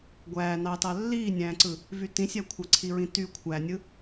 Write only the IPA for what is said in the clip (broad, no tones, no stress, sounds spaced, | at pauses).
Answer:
ɡʷ æː n ɑ t ɑ lː iː nʲ æ̃ː ǀ ɯ | v y t ĩ sʲ æ kʷʰ ɑ ǀʰ i ɹ ĩ t y kʷʰ æ nʲ ɯ